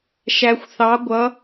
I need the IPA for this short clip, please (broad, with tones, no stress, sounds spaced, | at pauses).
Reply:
ʃ æ˩ xʷ θ ɑ˩˧ ɡʷ ʌ˩˧